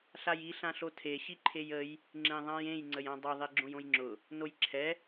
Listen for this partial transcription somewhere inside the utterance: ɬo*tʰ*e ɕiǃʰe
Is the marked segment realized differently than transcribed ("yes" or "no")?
no